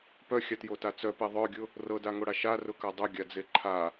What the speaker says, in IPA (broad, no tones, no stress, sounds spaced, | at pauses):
p œ xʲ a t j o t a t͡s œ p e ðˤ œ ɡʲ ʊ | r ɤ d a ŋ o ɽ a ʃ a r ʊ k a dˤ ʊ ɡʲ a d͡z e ǃʰ a